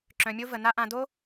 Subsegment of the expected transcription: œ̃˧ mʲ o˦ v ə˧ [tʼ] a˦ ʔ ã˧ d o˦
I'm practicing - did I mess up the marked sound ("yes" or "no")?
yes